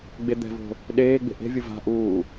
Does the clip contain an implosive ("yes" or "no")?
yes